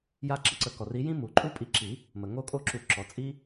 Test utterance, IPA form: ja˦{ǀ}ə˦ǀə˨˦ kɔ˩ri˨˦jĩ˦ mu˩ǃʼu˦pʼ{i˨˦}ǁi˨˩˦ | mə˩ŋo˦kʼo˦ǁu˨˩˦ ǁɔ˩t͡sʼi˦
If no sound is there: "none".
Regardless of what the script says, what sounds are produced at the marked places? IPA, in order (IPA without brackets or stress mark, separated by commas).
ǁ, i˨˦